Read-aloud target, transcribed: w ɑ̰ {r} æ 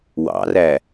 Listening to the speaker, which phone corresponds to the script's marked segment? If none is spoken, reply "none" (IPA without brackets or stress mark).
r